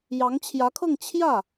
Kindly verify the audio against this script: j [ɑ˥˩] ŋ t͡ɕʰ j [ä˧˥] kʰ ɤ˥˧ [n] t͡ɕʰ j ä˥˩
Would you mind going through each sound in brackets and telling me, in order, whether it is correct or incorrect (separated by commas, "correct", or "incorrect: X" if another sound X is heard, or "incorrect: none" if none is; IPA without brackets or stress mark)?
incorrect: ɑ˧˥, correct, incorrect: ŋ